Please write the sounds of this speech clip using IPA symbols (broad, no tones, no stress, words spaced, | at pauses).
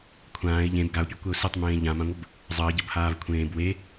kʷʰãːɪ̯ ʎẽb ɡaʊ̯pʲɤkʷɛʊ̯ setˤmẽː ʎãmãŋʷəb | zˤəːɟɤbhaːv kʷʰẽːb we